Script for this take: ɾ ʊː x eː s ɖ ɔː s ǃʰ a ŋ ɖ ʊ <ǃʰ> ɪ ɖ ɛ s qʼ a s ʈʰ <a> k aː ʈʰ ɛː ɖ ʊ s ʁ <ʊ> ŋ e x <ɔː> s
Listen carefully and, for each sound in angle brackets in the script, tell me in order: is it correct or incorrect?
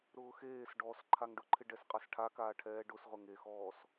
correct, correct, correct, correct

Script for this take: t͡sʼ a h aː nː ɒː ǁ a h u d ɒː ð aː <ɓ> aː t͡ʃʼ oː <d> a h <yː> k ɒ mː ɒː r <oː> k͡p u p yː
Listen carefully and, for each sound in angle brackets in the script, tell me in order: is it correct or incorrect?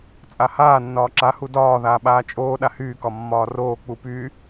correct, incorrect, correct, correct

